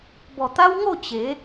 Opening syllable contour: low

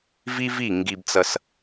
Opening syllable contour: high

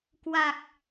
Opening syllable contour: low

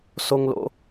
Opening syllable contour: high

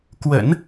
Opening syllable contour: low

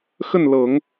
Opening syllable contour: falling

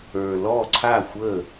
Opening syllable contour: low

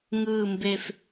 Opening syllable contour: low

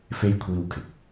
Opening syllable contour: high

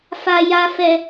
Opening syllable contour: high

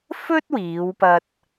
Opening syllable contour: high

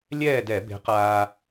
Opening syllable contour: falling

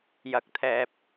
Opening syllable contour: low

